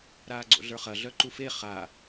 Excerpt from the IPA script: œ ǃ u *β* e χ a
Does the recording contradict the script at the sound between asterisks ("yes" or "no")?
yes